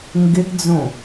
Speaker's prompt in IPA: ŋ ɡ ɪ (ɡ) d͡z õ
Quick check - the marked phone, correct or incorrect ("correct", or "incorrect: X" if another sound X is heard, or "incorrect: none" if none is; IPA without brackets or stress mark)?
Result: correct